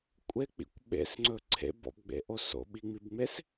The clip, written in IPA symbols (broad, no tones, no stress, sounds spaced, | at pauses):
kʷʼ e k͡p ḭ kʷ ɓ ḛ s ŋ͡ǀ ɵ ǀʰ ḛ b ɔ̰ b ɡ͡b ḛ ʔ o s o̰ ɓ i ŋ͡m i b ŋ͡m e s